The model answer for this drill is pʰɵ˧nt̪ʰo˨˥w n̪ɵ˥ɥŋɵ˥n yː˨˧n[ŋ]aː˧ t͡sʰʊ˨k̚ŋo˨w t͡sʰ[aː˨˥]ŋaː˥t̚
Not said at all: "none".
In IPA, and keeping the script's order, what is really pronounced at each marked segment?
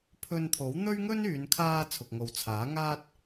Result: kʰ, aː˨˥

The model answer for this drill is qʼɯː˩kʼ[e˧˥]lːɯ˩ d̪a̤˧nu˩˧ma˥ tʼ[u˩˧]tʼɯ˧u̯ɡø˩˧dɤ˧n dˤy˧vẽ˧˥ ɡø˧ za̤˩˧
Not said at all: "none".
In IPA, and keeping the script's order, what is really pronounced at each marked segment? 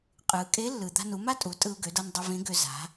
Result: e˧˥, u˩˧

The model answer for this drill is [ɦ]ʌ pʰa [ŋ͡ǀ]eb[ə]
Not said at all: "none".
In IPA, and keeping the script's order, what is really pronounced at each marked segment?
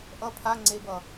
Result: ʔ, ŋ͡ǀ, ʌ

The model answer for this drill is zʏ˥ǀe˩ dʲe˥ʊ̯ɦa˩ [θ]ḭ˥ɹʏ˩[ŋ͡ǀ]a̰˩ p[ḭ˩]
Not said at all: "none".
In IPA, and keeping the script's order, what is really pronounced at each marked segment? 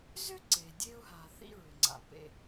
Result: θ, ŋ͡ǀ, ḛ˩

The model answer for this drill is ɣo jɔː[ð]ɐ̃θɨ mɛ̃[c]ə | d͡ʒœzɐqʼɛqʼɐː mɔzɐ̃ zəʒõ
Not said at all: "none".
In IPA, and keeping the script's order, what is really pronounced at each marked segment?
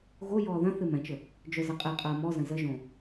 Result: ð, t͡ʃ

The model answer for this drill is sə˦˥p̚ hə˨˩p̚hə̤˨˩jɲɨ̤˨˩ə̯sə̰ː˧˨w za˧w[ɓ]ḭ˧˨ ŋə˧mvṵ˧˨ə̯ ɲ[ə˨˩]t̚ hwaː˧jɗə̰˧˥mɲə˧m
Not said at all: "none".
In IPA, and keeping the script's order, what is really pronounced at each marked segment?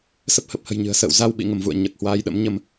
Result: ɓ, ə˨˩

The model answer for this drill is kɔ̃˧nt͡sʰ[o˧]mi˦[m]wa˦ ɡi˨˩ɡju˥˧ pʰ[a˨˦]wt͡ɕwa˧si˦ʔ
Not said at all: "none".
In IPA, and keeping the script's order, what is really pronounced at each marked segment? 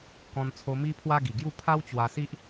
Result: o˧, pʰ, a˦

